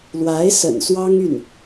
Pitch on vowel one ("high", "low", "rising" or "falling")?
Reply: rising